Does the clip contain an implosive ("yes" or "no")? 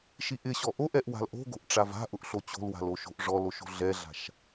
no